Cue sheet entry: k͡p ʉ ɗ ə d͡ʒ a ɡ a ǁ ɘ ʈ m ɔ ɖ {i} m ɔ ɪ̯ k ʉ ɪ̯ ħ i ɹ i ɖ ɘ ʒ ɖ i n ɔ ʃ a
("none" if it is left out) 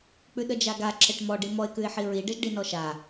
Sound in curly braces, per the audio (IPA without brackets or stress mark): i